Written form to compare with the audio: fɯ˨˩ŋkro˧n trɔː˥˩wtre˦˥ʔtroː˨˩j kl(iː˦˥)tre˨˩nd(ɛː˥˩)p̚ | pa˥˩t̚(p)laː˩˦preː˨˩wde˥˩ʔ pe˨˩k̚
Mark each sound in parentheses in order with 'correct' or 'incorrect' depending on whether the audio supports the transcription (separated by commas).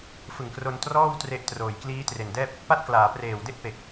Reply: correct, correct, incorrect